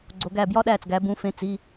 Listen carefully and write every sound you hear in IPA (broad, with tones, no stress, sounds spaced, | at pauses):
ɡ͡ǀ o˩˧ ɡ æː˧˩ b j ɒ˦˥ ɗ æː˧˩ t͡s ɡ æ˩˧ b ũ˩˧˩ f ẽ˧˩ t͡s i˩˧˩